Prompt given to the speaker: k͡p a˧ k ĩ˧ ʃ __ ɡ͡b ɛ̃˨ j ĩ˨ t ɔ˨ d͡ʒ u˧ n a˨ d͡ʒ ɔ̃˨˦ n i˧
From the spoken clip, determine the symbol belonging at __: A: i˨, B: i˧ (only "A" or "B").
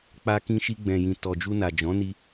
B